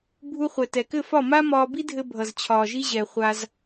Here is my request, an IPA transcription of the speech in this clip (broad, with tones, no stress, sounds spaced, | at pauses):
bʱ u˧ χʷ ɛ˨ t ɛ˨ k ɘ˦˨ f ɒ˦˨ m a˦ m ɒː˧ b i˦ dʱ ɘ˧ bʱ ʌ˨ z t͡ɕʰ ɒː˨ ʒ i˧ ʑ ɛ˨ χʷ a˧ z